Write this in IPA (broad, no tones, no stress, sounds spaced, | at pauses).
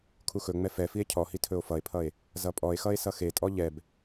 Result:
kʰ u x ɵ ŋ͡m ɛ f ɛ f i e̯ cʰ ɔ h i tʰ ɵ o̯ f ʌ e̯ pʰ ʌ e̯ | z ʌ pʼ ɔ e̯ x ʌ e̯ s ʌ x e tʼ ɔ ʎ ɛ b